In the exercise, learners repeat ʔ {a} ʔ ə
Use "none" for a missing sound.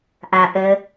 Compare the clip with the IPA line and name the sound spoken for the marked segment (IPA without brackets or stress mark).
a